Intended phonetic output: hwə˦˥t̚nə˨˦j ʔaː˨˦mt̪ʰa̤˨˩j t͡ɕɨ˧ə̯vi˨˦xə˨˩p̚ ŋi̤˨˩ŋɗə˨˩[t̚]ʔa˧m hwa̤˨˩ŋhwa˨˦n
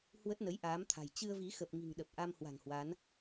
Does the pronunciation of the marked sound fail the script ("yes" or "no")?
yes